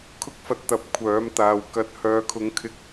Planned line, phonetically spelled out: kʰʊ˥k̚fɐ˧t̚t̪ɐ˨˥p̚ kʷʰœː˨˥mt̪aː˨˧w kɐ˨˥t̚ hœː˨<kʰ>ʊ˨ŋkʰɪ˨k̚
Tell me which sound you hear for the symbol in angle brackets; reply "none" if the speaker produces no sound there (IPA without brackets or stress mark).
kʰ